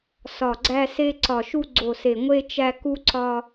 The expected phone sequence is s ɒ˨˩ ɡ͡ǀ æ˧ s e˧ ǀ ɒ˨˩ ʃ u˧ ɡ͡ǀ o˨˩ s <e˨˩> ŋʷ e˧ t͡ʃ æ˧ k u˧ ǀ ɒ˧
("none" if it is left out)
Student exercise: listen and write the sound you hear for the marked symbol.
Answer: e˨˩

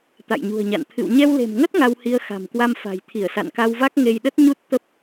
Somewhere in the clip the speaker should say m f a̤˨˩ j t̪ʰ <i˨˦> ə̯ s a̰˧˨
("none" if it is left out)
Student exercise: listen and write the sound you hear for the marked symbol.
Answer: i˧˩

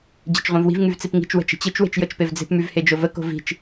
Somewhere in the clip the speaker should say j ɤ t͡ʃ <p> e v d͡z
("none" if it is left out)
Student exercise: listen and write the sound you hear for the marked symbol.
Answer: p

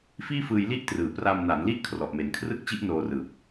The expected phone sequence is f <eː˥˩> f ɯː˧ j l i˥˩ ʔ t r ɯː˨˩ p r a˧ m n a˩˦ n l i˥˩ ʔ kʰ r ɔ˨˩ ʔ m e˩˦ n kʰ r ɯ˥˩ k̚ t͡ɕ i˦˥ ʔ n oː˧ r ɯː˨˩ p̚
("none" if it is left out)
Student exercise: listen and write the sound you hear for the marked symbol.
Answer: iː˥˩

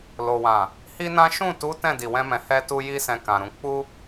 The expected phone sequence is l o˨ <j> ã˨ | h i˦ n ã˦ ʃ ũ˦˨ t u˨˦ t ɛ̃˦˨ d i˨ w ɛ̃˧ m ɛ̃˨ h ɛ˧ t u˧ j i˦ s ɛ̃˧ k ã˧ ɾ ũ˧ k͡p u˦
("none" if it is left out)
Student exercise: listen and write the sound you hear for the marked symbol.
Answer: w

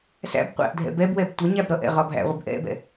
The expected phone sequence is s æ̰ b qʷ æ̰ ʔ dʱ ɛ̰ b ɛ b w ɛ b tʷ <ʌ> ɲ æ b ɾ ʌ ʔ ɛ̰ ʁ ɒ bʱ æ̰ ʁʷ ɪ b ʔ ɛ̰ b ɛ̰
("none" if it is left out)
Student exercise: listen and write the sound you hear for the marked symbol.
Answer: ʌ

